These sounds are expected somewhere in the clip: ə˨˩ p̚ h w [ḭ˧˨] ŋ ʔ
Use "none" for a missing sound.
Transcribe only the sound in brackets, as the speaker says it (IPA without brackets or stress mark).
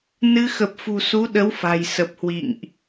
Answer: ḭ˧˨